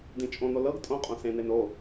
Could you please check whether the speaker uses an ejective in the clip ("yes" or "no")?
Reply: yes